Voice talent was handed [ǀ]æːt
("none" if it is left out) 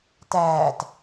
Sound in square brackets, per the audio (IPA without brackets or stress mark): t